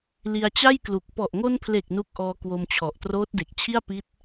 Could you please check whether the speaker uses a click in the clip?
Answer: no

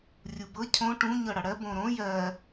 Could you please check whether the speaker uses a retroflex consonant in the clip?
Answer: yes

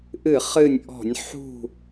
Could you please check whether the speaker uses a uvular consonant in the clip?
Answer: yes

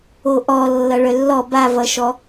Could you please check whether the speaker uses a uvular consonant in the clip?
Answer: no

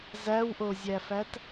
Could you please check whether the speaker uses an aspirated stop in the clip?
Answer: no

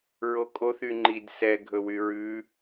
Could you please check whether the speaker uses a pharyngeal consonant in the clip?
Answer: no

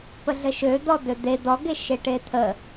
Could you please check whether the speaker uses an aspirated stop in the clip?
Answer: yes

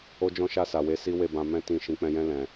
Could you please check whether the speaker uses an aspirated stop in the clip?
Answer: no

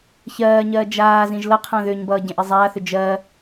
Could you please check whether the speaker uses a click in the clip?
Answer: no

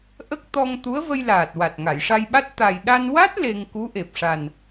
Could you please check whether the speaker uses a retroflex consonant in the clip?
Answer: yes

